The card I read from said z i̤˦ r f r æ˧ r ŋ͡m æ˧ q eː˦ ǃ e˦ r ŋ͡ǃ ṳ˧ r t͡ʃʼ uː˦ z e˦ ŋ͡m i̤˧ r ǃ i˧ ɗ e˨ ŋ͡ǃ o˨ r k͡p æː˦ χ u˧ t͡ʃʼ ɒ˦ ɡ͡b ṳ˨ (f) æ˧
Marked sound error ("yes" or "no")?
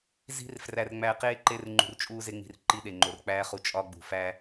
no